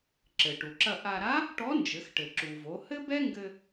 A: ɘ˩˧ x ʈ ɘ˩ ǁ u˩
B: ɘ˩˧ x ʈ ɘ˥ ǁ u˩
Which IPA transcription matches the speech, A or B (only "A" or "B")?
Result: A